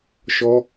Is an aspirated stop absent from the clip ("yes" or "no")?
yes